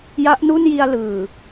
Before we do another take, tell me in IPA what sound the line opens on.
j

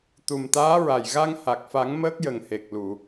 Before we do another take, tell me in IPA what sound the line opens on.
t̪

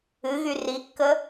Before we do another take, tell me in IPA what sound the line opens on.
ɨ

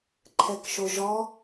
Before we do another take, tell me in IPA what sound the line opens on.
ǃʰ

